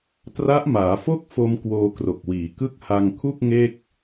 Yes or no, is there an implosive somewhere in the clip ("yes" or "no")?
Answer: no